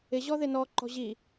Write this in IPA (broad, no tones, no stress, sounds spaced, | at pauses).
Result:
ɪ ʑ ɔ ð ɪ n ɔ ǃ ɔ̤ ʑ i